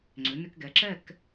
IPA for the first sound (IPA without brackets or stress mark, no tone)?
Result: ŋ͡ǀ